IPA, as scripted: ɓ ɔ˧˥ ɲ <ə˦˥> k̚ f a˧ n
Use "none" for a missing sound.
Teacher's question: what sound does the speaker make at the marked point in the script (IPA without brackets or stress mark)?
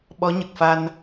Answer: ə˨˩